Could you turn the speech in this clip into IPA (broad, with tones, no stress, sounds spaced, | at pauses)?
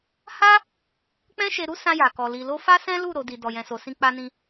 h a˦ | k͡p ɛ̃˦ ʃ e˧ ɾ u˦ s ã˧ j a˨ k ɔ˨ l i˨ l o˧ f a˦ s ɛ̃˦ l u˦˨ ɾ o˨˦ d i˧ d ɔ˨ j ɛ̃˨ s o˨ s ĩ˧ k͡p a˧ n ĩ˧